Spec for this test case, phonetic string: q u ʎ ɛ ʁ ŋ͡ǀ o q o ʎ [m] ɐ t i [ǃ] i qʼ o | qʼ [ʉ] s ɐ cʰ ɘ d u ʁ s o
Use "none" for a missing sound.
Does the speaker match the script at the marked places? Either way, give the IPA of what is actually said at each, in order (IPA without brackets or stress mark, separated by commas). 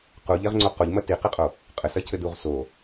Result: m, q, ɘ